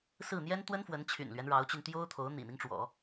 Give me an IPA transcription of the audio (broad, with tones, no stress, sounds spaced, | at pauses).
s ɹ̩˥˩ n̪ j ɛ˥ n t̪ w ə˥ n f w ə˧˥ n t͡ɕʰ y̰˨˩ n l ɥ ɛ˦ n ɻ ɑ˧˥ ʊ̯ t͡ɕ y˧ n t̪ j o˥ ʊ̯ t̪ʰ o˧˥ ʊ̯ n̪ ḭ˨˩ n̪ i˦ ŋ ʈ͡ʂ w ɔ̰˨˩˦